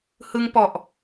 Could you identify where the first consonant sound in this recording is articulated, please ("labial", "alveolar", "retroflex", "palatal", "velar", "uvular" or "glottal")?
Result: glottal